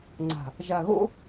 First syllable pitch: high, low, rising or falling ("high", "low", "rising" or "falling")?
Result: low